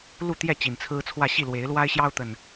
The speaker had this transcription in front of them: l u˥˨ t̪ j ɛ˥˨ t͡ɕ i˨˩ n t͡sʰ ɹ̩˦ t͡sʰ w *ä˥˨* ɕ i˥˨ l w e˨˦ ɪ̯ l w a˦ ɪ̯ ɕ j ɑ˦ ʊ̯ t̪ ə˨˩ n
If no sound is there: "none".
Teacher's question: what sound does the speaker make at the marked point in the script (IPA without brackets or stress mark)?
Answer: ä˥˨